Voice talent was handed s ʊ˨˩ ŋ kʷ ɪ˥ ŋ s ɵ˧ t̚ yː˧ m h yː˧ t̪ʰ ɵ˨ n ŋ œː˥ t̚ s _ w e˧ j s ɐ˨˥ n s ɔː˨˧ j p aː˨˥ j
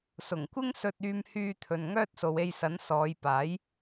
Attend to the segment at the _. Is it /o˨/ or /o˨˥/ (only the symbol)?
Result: o˨